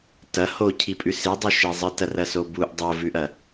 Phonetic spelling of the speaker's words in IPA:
t ɐ h o cʰ i pʼ ʉ s i dˤ ʉ ʃ e zˤ ɨ t ɐ r ɐ s o b u ʔ dˤ o v ʉ ʔ ɐ

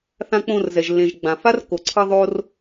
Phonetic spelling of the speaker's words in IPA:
θ ã˧ k͡p õ˧ r z ɛ˨ ʒ lː ẽ˨ ʒ ɡ͡b ã˨ f a˦ r kː o˨ ǀʰ ʌ˦ ðˤ o˦ r

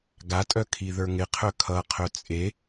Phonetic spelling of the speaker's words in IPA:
ɡ a tʼ œ kʰ i ð ə˞ ŋ ɪ qʰ œ kʰ ʌ qʰ œ t͡sʼ e

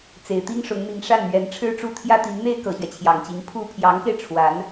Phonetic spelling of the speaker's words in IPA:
t͡s e˨˩ ɪ̯ t̪ i˥ ŋ ʂ ʊ˧˥ ŋ n̪ i˧˥ ŋ ʂ a˥˩ n m ɥ ɛ˧˥ n ʈ͡ʂʰ ɻ̩˥ ʈ͡ʂ u˥˩ t̪ʰ j ä˥ t̪ i˧˥ ŋ n̪ e˥ ɪ̯ k ɤ˨˩ ɕ ɥ ɛ˦ t͡ɕʰ j ɑ˨˩ ŋ t͡ɕ i˧˥ ŋ pʰ u˥ pʰ j ɑ˧˥ ŋ k e˧ ɪ̯ ʈ͡ʂʰ w a˧˥ n

